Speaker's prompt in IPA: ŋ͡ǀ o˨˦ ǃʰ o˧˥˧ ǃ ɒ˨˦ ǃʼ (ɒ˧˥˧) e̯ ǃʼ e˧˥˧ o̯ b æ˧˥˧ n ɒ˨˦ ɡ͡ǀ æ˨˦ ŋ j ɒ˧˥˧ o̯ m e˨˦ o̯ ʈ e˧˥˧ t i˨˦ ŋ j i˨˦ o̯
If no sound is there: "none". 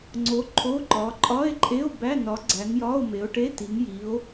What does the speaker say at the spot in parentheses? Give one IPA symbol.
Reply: ɒ˧˥˧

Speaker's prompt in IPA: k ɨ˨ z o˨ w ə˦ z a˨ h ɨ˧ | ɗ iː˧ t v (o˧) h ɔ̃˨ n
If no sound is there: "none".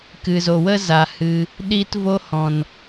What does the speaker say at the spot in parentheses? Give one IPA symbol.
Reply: o˧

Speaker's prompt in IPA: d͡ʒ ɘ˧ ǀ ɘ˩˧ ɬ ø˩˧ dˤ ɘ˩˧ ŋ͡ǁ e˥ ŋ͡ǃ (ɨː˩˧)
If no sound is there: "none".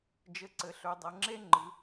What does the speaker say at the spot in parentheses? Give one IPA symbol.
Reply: ɨ˩˧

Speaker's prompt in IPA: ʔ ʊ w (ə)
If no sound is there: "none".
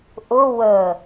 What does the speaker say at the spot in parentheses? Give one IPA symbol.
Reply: ə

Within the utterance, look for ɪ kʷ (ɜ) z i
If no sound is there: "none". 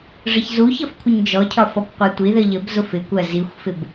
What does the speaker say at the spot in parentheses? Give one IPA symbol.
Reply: ɜ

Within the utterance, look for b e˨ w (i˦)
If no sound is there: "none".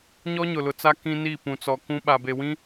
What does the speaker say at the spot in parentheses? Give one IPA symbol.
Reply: ĩ˦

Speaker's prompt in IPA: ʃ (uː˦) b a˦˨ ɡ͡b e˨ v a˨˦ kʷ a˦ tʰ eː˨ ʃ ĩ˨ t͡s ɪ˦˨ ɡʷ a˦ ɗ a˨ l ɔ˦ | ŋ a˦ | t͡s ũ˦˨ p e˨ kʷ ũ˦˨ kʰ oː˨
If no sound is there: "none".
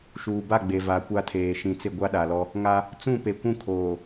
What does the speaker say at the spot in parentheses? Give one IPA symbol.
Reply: uː˨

